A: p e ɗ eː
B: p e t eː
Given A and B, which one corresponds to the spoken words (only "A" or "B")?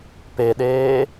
A